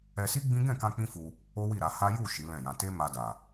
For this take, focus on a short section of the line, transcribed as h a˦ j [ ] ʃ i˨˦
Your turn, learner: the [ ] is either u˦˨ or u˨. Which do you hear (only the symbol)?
u˦˨